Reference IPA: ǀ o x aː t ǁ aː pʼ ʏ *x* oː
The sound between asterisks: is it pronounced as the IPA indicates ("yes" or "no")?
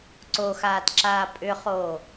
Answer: no